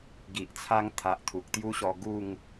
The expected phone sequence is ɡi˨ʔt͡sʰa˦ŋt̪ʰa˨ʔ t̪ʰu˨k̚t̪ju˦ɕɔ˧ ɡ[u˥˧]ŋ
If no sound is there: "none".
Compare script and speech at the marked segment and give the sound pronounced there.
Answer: u˥˧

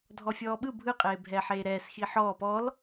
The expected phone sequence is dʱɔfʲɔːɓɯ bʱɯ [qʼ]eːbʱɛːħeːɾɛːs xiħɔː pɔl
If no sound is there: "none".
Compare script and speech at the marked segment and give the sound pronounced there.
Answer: qʼ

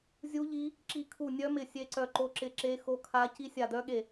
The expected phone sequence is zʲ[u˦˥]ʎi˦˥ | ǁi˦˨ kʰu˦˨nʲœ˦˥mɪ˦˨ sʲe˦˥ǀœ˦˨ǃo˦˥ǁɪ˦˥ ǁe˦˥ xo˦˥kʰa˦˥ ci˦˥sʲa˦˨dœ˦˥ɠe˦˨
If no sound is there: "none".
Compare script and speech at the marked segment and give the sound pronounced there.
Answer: u˦˥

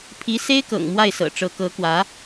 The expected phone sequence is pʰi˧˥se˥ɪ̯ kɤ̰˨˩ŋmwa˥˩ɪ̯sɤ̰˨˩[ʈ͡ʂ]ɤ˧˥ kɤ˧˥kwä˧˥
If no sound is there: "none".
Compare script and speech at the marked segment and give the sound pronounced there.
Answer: ʈ͡ʂ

